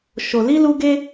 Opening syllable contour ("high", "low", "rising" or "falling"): low